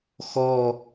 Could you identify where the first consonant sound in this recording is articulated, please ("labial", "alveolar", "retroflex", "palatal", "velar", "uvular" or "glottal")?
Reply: velar